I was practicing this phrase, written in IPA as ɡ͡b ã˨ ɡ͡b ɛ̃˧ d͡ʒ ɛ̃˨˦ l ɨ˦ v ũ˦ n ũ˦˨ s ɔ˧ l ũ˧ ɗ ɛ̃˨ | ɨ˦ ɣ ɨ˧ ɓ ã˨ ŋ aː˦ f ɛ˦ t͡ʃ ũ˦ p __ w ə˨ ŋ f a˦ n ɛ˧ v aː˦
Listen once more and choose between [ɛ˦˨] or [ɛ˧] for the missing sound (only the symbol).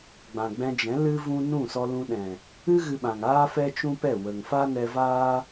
ɛ˦˨